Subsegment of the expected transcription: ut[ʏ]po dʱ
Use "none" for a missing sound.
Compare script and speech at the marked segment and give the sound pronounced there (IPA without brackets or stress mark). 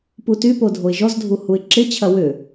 y